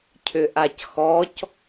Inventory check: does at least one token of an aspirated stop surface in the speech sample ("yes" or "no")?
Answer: yes